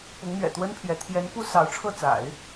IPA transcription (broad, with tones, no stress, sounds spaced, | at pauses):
p ʊ˧˥ ŋ n̪ ɥ ɛ̰˨˩ t̪ w ə˥ n pʰ j ɛ˧˥ t̪ʰ j ɛ˧˥ n p u˥ s ɑ˧˥ ʊ̯ ʈ͡ʂʰ ɤ˥˩ t͡s a̰˨˩˦ ɪ̯